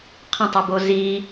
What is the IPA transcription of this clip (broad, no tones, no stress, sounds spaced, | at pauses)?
qʰ ɐ̃ tˤ i b o z i